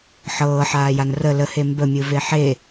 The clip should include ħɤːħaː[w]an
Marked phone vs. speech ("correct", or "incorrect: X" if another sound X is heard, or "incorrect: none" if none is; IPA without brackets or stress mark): incorrect: j